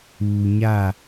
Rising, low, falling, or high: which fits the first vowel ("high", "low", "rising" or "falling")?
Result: low